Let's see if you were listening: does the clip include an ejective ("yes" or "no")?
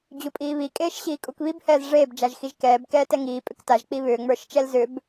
yes